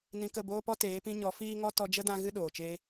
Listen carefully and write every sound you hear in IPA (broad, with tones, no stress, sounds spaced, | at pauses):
n ĩ˧ k ə˦˨ b oː˦ p ɔ˦ t eː˨˦ p ĩ˧ ɲ ɔ˨˦ f iː˦ ŋ ɔ˦ t ɔ˧ d͡ʒ ə˦ d ã˧ ɣ ɨ˦ ɗ oː˨ t͡ʃ eː˧